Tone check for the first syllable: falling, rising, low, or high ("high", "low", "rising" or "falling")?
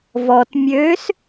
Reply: low